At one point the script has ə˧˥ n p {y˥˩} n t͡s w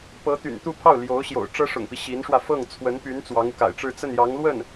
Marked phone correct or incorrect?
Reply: incorrect